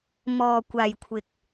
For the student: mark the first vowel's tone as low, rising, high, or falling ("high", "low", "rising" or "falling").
low